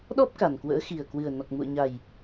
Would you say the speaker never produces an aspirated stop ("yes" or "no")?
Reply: yes